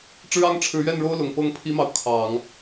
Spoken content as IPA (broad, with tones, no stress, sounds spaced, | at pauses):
ʈ͡ʂ ɻ̩˥ ɑ˥ ŋ ʈ͡ʂʰ ɻ̩˧˥ ɥ ɛ˥˩ n ɻ o˥ ʊ̯ l ʊ˨˩ ŋ p ɤ˥ ŋ pʰ i˥ m ɑ˨ ʊ̯ kʰ ɑ˨˩˦ ŋ